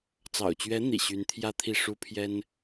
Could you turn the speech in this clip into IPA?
t͡s ɑ̰˨˩ ʊ̯ t͡ɕ ɥ ɛ˧˥ n̪ ḭ˨˩ ɕ y˧˥ n t̪ʰ j ä˥ t̪ʰ i˥˩ ʂ u˥ pʰ j ɛ˥ n

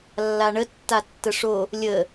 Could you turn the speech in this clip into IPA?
lː a ɳ ə tː a tː ə ʂ o | lʲ ə

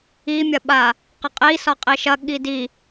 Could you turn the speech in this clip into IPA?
i mʲ ɐ ɓ a | q ə qʼ i s ɒ qʼ i ʃ ɐ ɠ i d i

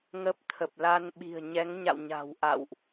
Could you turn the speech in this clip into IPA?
ŋ ə˦˥ p̚ t̪ʰ ə˨˩ p̚ l a˧ n ɓ i̤˨˩ ə̯ ɲ ɛ˨˦ ŋ ɲ a̰˧˨ w ɲ a̤˨˩ w ʔ a̰˧˨ w ʔ

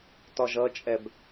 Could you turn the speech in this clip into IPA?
t ɒ ʒ ʌ t͡ʃʼ ɛ b

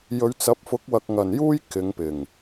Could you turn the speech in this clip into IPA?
j ɵ˨˧ ɥ t͡s ɐ˨˥ p̚ f ʊ˨˥ k̚ w ɐ˨ k̚ ŋ ɐ˨˩ n j uː˥ j k ɪ˨˧ ŋ p ɪ˨˩ ŋ

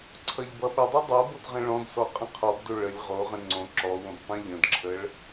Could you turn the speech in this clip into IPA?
ǀʰ ʌ ʎ b ʌ ɓ ʌ dˤ ʌ dˤ o b o d ʁ ə̃ ɭ ɔ̃ d s ɔ qʼ ə̃ qʰ ɔ b d o ɭ ə lʲ ʁ o ʁ ə̃ ŋ͡ǀ õ ǁ ɔ w õ b tˤ õ ʎ ə̃ d ǁʰ ə ɭ

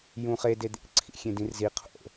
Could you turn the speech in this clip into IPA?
j ũ χ e d e d̪ ḛ ǀʰ ḭ xʲ ẽ d ĩ r z i qʰ o̰

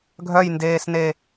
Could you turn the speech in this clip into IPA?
ɡʱ œ j n d eː s n e

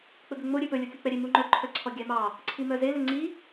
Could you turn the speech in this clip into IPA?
k͡p ɵ ɡ ɵ ŋ͡m o ɾʲ ø p ɵ lʲ o kʲ u k͡p ɛ ɾʲ e m u ŋ͡ǃ œ ǃʰ œ ǀʰ ɔ ɡʲ æ m ɑ | ǀʰ i m œ z e l ø ŋ͡ǀ i

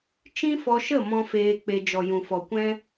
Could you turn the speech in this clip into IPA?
t͡ʃ ĩ˦ f ɔ˧ ʃ ə˦˨ m ɔ̃˧ f eː˧ k͡p e˧ d͡ʒ ɔ˨ j ũ˨ f ɔ˨ kʷ ɛ̃˦

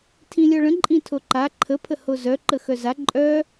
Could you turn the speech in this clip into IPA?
tʰ ĩ lʲ ɔ ɭ ə̃ ǃʼ ĩ tʰ o ǃ a ǃʰ ə pʰ ə h o z œ ǃ ə x œ z a ǃʼ œ

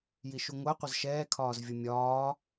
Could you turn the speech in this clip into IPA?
j i ʃ u ŋʷ æ qʷ ʌ z ʃ ɛː kʰ ɒː z vʲ ʌ mʲ ɒː

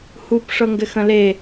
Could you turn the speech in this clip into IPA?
h u p ʂ ɤ ŋ ɡ ɘ x ə̃ l e

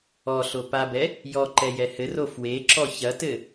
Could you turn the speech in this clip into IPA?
ɔ ɬ o p a b ɛ | j ɔ ǃ ɛ j ɛ h ɘ r o f w e ǁ ɔ ç ɐ t ɘ

